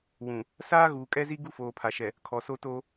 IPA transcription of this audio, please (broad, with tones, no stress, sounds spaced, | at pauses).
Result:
w ũ˨ | s aː˦ ɣ uː˨ kʼ ɛ˦ z i˦ ɡ u˦ f oː˨ pʰ a˨ ʃ ɛ˨ | kʰ ɔ˨ s o˦ t oː˦